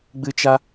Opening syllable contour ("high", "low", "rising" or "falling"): high